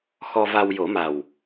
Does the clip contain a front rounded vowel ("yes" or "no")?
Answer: no